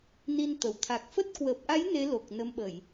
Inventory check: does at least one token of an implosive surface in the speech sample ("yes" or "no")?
yes